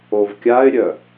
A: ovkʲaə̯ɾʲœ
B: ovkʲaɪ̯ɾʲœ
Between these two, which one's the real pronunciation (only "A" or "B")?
B